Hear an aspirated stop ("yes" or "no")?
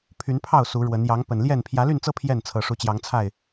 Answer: yes